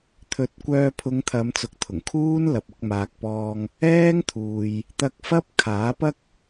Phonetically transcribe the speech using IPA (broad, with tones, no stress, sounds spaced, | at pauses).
t̪ʰ ɵ˨˥ t̚ kʷ œː˧ pʰ ʊ˨˧ ŋ t̪ʰ ɐ˨˧ m t͡s ʊ˨ k̚ t̪ʰ ʊ˨˩ ŋ kʰ uː˥ n l ɐ˨ p̚ ʊ˨˥ k̚ m aː˨ k̚ p ɔː˧ ŋ | ɛː˥ ŋ t̪ʰ uː˨ j | t̪ ɐ˧ k̚ f ɐ˥ p̚ kʰ aː˨˥ p ɐ˥ k̚